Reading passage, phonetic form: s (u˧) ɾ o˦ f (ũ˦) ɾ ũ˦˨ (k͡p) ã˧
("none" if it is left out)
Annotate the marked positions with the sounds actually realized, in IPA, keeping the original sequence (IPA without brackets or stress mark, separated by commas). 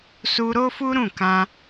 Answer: u˧, u˦, k